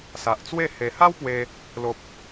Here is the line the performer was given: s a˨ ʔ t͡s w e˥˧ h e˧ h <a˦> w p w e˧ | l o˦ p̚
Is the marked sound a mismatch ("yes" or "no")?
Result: no